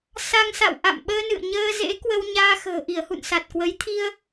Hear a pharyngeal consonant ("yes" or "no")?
no